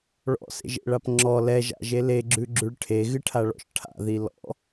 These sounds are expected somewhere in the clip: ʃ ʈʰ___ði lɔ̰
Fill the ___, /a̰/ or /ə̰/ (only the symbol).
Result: a̰